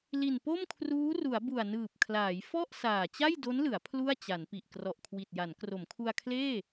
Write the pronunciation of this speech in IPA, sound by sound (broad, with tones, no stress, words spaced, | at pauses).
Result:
li˨˩npo˥˩mkʰruː˦˥ ru˩˦a̯bu˨˩a̯nɯː˨˩p̚kʰlaː˩˦j fɔ˥˩ʔ saː˨˩t͡ɕa˥˩jdo˦˥nlɯ˩˦a̯ pʰlu˥˩a̯t͡ɕa˩˦npi˨˩ʔ krɔ˨˩ʔkʰwi˨˩t̚ja˩˦n kro˩˦mkʰu˧a̯kʰleː˥˩